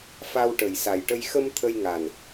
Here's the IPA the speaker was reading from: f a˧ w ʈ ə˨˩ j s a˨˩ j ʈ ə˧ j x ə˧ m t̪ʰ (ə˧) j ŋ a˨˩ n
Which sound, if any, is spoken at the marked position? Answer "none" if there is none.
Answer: ə˧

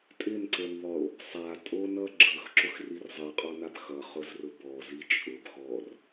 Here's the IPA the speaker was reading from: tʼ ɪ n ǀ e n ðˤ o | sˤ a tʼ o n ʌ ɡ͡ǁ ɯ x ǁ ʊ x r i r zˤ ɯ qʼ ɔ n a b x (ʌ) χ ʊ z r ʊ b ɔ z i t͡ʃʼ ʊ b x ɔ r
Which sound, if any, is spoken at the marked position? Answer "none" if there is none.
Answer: ʌ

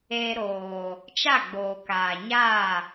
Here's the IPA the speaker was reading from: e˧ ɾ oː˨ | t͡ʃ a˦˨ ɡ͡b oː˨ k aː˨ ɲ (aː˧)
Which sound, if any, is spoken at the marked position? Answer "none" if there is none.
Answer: aː˦˨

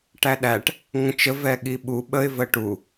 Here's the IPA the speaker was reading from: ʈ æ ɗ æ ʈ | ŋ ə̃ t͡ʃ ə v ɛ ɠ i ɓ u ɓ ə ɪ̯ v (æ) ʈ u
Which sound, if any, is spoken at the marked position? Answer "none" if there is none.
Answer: ə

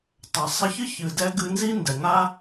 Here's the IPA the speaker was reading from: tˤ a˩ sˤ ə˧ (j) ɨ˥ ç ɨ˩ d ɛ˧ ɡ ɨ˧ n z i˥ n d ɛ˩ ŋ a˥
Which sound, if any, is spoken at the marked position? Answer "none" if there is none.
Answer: ç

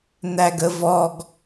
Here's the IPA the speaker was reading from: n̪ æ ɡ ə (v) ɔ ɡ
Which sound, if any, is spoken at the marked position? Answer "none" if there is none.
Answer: v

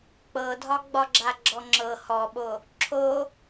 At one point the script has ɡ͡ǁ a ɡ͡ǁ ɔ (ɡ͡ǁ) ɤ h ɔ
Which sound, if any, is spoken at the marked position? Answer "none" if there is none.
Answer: ŋ͡ǁ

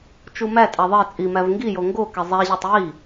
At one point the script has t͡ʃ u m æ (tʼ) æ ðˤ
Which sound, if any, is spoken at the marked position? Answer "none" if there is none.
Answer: tʼ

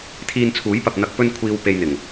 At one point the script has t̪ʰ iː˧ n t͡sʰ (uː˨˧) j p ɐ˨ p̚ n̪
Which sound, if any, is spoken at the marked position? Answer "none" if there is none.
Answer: uː˨˥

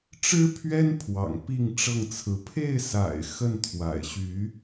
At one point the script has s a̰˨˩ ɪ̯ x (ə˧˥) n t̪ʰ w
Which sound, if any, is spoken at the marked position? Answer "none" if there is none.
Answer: ə˥˩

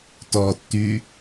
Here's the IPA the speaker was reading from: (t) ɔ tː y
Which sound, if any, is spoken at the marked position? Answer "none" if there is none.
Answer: t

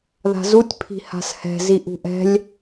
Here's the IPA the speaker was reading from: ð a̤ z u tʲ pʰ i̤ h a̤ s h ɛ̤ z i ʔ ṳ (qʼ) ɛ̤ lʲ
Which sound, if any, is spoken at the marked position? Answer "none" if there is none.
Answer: ʔ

